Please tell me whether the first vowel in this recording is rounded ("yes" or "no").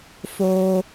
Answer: yes